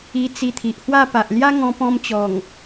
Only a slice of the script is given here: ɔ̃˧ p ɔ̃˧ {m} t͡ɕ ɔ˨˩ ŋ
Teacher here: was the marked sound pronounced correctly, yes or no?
yes